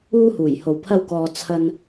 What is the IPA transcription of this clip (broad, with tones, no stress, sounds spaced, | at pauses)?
uː˥ h uː˨˩ j h o˨ w pʰ ɐ˥ w k ɔː˧ t͡sʰ ɐ˧ n